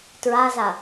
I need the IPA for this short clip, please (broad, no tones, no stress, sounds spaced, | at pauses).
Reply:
t ɹ a z a